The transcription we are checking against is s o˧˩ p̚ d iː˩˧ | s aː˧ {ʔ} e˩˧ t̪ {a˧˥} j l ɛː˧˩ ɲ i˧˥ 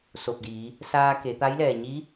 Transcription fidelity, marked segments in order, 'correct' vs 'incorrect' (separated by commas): incorrect, correct